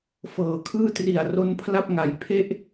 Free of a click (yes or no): yes